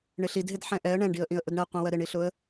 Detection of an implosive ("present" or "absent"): absent